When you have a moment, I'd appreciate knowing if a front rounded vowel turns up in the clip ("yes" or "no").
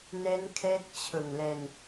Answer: no